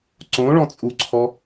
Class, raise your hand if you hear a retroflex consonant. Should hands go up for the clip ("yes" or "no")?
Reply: yes